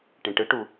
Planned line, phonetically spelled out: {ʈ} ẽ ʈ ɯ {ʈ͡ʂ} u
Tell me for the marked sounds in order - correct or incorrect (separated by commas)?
correct, incorrect